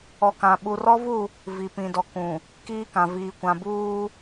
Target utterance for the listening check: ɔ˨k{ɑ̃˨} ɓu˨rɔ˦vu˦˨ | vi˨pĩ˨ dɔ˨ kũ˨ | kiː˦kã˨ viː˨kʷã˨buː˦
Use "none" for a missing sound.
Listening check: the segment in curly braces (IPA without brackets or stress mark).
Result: ã˨